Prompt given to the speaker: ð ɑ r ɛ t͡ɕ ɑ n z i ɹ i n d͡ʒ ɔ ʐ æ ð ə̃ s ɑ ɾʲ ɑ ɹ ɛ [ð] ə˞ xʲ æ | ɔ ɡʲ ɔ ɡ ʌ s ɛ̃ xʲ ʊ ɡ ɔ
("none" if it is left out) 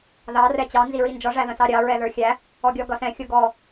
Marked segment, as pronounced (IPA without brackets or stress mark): ð